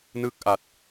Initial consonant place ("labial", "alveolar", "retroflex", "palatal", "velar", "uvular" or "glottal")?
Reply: alveolar